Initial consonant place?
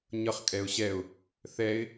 palatal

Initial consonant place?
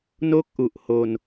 alveolar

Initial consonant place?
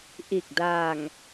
glottal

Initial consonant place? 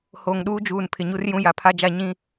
glottal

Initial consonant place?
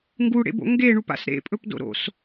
velar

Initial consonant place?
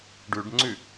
retroflex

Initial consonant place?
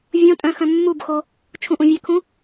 labial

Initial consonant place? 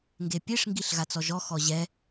velar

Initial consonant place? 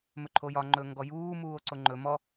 labial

